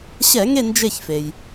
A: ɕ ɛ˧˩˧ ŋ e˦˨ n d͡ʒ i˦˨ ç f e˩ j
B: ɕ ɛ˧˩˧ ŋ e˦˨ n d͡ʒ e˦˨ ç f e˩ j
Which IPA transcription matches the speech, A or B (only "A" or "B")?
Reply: B